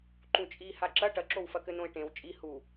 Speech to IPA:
ǃũt͡ʃʼi haǁɐ ʈɐǁowfɐkɘ nõɪ̯ʈẽw t͡ʃʼi hu

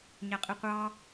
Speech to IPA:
ɲæqʼiqʷɑ

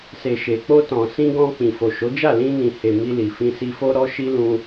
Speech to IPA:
se˨ʃe˨k͡po˧ tɔ̃˨sĩ˧ ɡɔ̃˧ k͡pĩ˨fo˨ʃo˨˦d͡ʒa˦˨ lĩ˧nĩ˨he˨ mi˧li˨fĩ˧ si˧fo˦ɾɔ˦ ʃi˦lũ˧

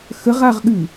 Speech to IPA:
xəʁaʁɠʉ

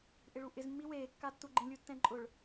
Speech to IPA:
ʔɪɭuʔɪz mːiweː kːatːuɡ͡ǃĩ lʲutːɛ̃ǃʼʊɭ

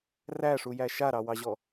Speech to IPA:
ræʂujæ ʃaɾɑwɑʑɔ

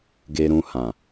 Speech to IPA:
ɡe˧ɾũ˧hã˨

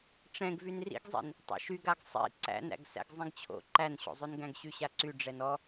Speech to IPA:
ʈ͡ʂɛ̃ɡ vynrḭɡzˤḭn | tˤæ̰ʃyɡaɡ sˤḭ ǀæ̰næ̰ɡ sæ̰ɡzˤĩɡt͡ɕʰo̰ ǃænɕo̰zˤʉnɡæ̃ɡ ɕyɕaǀy ɖ͡ʐɛnɔ

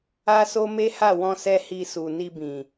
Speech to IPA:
a˦so˦ me˦ha˦˨wɔ̃˧ sɛ˦hi˧su˨ ni˧bĩ˨

